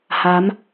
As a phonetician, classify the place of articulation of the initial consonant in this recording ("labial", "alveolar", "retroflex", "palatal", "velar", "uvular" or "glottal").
glottal